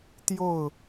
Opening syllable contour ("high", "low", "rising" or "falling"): falling